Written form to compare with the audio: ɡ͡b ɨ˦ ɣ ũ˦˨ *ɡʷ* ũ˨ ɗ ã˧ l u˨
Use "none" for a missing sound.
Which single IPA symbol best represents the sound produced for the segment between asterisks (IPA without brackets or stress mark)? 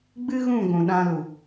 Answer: ɡʷ